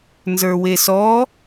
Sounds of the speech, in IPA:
nzə˞wesɔ

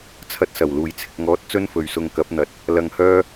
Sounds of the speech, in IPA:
t͡sʰɐ˧t̚ sɐ˨˩wluː˨j t͡sʰɪ˨k̚ŋɔː˨˥t̚ t͡sɵ˥nfɵ˨ɥsʊ˧ŋ kɐ˨˥p̚n̪ɐ˨˥t̚ | lɐ˧ŋhœː˥

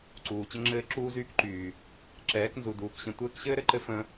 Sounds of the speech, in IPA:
ǀuː˨t͡ɕə˦ŋ͡ǁɘː˦ ǁuː˦zyː˦kǃyː˨ | ǁɛː˨˦knzu˨duː˨k ɕə̃˧ tʷɘː˦kɕɘː˦ɾɘ˨ǃɘ˦ fə̃˧

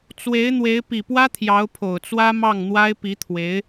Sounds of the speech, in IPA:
t͡swe˧˥ɪ̯n̪we˧˥ɪ̯ pi˨˩pwä˥ t̪ʰjɑ˧˥ʊ̯pʰo˨˩ʊ̯t͡swä˥ mɑ˥˩ŋn̪wa˥ɪ̯pi˧˥ t̪ʰwe˧˥ɪ̯

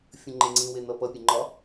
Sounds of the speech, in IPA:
fʲə̃ŋ͡ǃeŋ͡ǀĩ wen̪ʌpʌ pʲeŋ͡ǃɒ

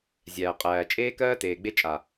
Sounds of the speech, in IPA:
zʲæː˨qʼæː˨ t͡ʃʼeː˧kɜː˧ teː˨ɡ͡be˧t͡ʃʼa˨

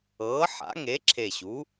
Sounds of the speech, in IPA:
ɤː˩˥ħa̰˩˥ŋe˩˥ ǁʰe˨˩ɕu˩˥

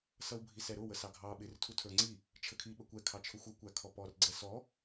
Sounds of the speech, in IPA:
sʌwbʱisɛɾʊ wəsɑɡʱɑ ɓɪr tʰutʰə˞ŋ͡ǀi | t͡ʃʰəkʰi ɓəkʷɛ kʰɑt͡ʃʰʊxʷʌ kʷækʰɔpɔr ɡ͡ǀɛsɔ

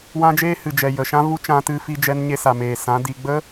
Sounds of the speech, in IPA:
wã˦d͡ʒeː˦hɨ˨ d͡ʒɛ˨ jə˨ʃã˦vu˦ t͡ʃã˧tɨ˧fi˧d͡ʒɛ˧n ɲe˧sa˨meː˨ sã˨˦di˧ ɡ͡bə˦

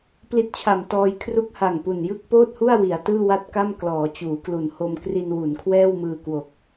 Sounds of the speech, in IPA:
pli˦˥t̚t͡ɕʰa˨˩mtɔː˧j kʰru˦˥k̚ha˨˩ŋ pu˨˩njɯ˥˩k̚poː˥˩t̚hu˥˩a̯ wi˩˦a̯tɯː˥˩wa˥˩t̚ka˥˩m klɔː˩˦t͡ɕuː˩˦ klu˨˩n ho˧mkri˧nwu˩˦n kʰwɛː˥˩wmɯː˧kwo˨˩k̚

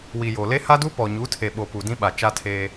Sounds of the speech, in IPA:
wi˨jo˨ le˦ha˦du˦ pɔ˨ɲu˨˦tʰe˨ɓo˨ pu˨dĩ˦ɓa˨ t͡ʃa˦tʰeː˦

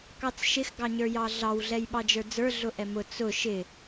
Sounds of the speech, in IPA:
kɑt͡sʃɪx ɡɑɲə˞jɑɮɑw ɮɛjɓɑd͡ʒə˞d͡zə˞ ɮʊʔɛmʊ t͡sʊ ʃɪ

